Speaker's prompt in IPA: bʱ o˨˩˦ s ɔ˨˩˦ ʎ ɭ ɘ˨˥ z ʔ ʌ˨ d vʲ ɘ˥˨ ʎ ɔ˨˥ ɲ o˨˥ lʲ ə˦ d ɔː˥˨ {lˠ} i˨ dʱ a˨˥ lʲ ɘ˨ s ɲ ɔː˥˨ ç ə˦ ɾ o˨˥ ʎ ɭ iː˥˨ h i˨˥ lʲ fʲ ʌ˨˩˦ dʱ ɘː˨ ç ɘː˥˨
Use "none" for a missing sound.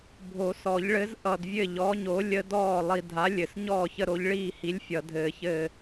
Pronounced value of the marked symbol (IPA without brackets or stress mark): lˠ